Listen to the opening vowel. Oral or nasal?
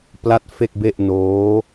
oral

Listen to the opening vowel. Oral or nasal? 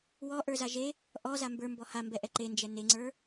oral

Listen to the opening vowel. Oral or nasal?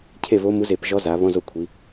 oral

